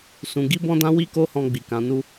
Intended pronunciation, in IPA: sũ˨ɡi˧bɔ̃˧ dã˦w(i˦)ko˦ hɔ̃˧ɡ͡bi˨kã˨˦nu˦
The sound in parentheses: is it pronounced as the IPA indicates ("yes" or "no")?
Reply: yes